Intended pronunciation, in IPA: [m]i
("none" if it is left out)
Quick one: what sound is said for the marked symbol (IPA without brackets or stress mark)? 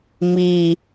m